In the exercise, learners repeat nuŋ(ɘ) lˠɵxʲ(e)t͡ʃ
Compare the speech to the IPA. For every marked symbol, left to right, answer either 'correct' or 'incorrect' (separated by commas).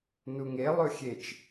incorrect, correct